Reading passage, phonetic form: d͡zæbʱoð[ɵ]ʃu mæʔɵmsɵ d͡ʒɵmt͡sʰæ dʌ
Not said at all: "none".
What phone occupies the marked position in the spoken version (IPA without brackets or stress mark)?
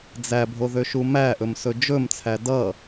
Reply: ø